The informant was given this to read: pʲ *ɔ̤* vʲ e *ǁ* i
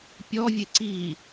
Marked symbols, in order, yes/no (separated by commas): no, no